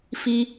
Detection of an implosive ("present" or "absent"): absent